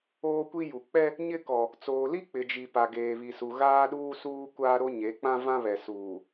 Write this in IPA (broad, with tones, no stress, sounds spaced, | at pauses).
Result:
oː˦ kʷ i˦ j u˨ k͡p ɛ˦ | ɲ ɪ˦ k ɔ˨ | t͡s oː˨ l i˦ k͡p ɪ˨ d͡ʒ i˨ p a˨ ɡ eː˨ β i˨ s u˨ ɣ aː˦ ɗ uː˦ s uː˦ kʷ aː˦ ɾ o˦ ɲ e˨˦ k͡p ã˦ v ã˦ β ɛ˨ s uː˨